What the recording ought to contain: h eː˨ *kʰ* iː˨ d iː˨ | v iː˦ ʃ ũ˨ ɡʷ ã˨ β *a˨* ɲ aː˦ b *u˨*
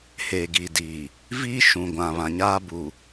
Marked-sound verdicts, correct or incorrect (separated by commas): incorrect, incorrect, correct